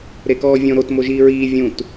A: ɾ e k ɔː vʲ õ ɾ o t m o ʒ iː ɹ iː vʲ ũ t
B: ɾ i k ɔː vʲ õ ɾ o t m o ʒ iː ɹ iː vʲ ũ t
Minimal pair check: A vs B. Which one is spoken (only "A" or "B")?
A